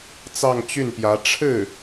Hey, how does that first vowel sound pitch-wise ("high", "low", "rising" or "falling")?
falling